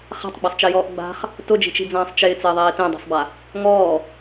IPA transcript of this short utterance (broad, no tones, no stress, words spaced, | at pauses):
χa̤tˤɡ͡basˤt͡ʃejɔːʔ ɡ͡ba̤χ | tʊd͡ʒi̤t͡ʃi̤d͡zãːsˤ t͡ʃɪːt͡sɪːðˤiː tẽdˤe̤sˤba | ŋɔː